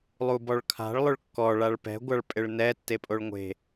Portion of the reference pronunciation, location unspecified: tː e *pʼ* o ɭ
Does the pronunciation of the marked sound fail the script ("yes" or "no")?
no